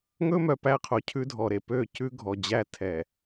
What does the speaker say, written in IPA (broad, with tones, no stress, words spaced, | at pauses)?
ŋɵ˦mœ˨pæ˦qʰo˨ cʰʉ˦dʱɔ˨ɾe˨ pø˦˨cʉ˦ ɡʱɔ˨d͡ʑæ˦ tʰɛ˨